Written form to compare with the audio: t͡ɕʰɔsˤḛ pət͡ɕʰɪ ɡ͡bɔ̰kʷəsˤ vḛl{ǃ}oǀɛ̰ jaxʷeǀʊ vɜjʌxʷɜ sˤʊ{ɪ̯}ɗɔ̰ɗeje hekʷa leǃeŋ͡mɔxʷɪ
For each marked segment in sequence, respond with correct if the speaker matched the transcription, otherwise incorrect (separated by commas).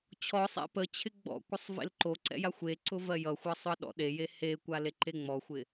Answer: correct, incorrect